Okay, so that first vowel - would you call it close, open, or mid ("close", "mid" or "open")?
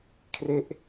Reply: mid